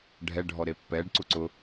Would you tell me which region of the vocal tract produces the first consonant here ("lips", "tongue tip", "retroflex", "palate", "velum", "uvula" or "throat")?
retroflex